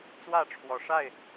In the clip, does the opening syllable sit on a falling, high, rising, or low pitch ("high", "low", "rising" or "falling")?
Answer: falling